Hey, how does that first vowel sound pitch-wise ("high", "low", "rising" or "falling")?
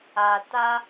low